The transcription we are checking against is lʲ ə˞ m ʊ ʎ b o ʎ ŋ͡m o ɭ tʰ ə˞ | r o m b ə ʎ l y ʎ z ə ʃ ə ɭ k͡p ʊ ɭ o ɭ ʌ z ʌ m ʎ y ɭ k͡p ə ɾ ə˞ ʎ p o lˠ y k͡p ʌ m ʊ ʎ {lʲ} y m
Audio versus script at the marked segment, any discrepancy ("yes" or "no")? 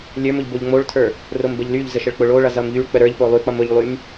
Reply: yes